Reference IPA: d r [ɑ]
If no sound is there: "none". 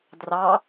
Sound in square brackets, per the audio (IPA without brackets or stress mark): ɑ